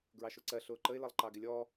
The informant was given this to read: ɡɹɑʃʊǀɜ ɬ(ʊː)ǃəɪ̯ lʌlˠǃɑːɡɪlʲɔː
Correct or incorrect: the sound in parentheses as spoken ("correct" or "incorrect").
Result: correct